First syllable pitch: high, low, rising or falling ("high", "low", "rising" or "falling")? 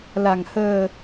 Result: low